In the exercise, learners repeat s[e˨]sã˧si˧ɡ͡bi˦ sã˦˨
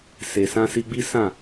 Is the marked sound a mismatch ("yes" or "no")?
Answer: no